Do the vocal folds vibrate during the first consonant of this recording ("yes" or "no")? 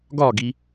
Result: yes